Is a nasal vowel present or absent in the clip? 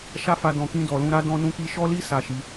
present